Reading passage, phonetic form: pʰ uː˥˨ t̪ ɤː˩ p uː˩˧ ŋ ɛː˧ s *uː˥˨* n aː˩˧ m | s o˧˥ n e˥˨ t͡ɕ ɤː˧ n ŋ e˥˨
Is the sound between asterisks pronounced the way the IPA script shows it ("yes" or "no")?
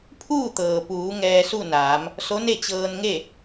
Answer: no